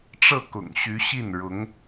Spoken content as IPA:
ʈ͡ʂ ɤ˥˩ k ʊ̰˨˩ ŋ ɕ y˧˥ ɕ i˥˩ n ɻ ʊ˧˥ ŋ

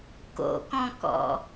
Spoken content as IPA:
k o̰ k ɔ̃ k ɔ̰

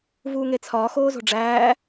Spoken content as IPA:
v uː ŋ e t͡sʰ ɒː x oː z o̤ ɖ͡ʐ æː

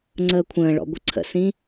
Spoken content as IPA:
ŋ͡ǀ əː kʷʰ ə̃ː ɭ ɔ̰ ɡʷ ə ǀʰ ə̰ s ĩ

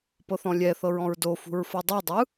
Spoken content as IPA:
p ɤ θ ɔ̃ lʲ ɛ θ ɤ ɹ ɔ̃ ɹ d o f ṳ ɹ f ɤ dˤ o dˤ ɯ

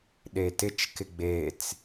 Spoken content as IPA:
ɗ e t ɪ t͡ʃ k ɪ ɡ͡b e t͡s

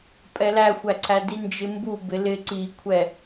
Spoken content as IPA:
pʼ ɛ l æ xʷ æ ǀʰ æ d i n d͡ʒ ɪ m b u b ɪ l ɪ ǀ i kʷʰ ɛ

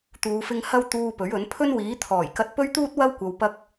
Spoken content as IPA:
t̪ uː˨˧ f ɪ˧ ŋ h ɐ˥ w t̪ uː˧ p ɵ˨˥ ɥ ɵ˨˥ n pʰ ɵ˥ n w iː˨˥ t̪ʰ ɔː˨˩ j k ɐ˧ t̚ p ɵ˥ ɥ t̪ uː˥ t̚ w ɐ˥ w kʷ ɐ˨ w p ɐ˧ k̚

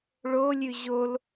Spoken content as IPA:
ɭ o lʲ ʉ ʑ o l

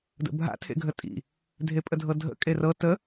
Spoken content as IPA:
d ə̰ bʱ a̰ tʰ ḛ ɡʱ ə tʼ ḭ | dʱ e pʼ ə dʱ ɤ dʱ ə̰ kʼ e r ɤ t ə

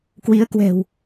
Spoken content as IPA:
k w i˨˦ ə̯ k w ɛ̤˨˩ w

